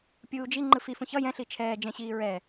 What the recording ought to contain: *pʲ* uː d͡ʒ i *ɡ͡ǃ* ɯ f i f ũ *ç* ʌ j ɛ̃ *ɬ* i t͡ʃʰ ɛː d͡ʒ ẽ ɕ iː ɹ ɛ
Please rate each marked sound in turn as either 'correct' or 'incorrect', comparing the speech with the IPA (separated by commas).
correct, incorrect, correct, correct